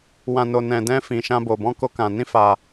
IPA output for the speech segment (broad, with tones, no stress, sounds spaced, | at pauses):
w ã˧ n o˧ n ɛ̃˧ d ɛ̃˦ f ĩ˧ ʃ ã˦ b o˧ b ɔ̃˦ k o˦ k ã˧ n ĩ˦ f a˧